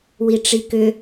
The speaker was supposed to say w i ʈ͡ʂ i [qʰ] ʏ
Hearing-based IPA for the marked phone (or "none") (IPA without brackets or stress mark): k